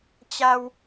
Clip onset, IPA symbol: t͡ɕ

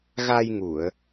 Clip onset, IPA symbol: ɣ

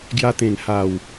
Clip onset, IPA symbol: ɡ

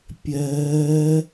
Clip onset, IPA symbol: pʲ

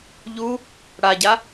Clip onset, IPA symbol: ʎ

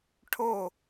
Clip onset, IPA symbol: ʈʰ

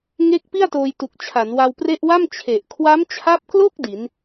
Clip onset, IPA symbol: ŋ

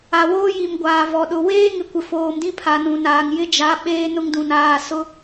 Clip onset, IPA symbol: a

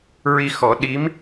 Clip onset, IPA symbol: ɹ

